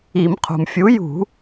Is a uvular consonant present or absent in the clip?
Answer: present